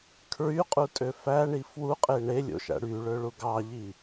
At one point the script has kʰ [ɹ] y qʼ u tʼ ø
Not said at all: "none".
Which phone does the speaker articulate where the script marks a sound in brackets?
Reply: ɹ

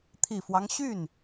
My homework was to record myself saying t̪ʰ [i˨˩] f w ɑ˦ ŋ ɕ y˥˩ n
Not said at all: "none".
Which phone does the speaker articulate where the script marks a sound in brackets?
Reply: i˨˩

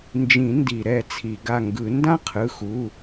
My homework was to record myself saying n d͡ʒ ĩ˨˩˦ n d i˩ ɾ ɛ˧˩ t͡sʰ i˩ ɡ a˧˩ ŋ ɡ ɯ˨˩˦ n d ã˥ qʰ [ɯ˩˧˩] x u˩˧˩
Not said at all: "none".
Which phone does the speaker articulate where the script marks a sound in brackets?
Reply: ɯ˩˧˩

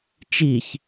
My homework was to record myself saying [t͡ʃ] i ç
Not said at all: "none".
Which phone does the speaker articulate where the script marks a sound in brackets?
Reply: t͡ʃ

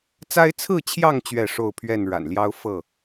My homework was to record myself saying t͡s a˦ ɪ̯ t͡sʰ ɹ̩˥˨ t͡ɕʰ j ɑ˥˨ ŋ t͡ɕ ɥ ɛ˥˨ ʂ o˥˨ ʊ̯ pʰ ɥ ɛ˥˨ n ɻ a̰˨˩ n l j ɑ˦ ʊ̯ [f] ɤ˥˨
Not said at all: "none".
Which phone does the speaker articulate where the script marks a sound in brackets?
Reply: f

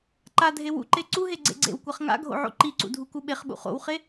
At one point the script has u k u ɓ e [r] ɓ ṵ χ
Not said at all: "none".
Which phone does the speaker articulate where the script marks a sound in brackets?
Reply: χ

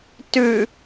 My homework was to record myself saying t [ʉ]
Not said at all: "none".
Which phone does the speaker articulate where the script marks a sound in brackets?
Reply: ʉ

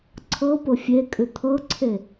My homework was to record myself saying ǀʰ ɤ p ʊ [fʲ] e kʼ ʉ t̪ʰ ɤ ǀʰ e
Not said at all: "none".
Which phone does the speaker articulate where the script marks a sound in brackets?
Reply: fʲ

